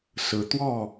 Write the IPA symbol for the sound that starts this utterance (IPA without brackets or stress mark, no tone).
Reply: s